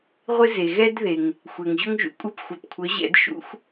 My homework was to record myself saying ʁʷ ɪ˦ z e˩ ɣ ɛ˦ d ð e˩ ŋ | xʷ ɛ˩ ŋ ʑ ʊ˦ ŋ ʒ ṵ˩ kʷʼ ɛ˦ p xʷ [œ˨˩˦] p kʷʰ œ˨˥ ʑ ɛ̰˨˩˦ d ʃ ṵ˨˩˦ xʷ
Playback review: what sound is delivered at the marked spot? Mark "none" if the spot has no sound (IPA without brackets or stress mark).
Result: œ˨˩˦